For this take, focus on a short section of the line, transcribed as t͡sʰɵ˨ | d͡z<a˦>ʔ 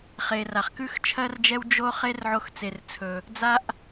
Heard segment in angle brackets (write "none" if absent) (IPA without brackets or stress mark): a˦